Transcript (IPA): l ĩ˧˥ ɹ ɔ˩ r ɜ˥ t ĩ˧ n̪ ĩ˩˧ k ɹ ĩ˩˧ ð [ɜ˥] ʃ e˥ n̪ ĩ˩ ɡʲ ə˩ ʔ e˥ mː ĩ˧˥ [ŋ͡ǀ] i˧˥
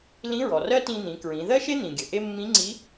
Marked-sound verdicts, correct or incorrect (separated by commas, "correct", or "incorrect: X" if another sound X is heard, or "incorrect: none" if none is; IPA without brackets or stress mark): correct, correct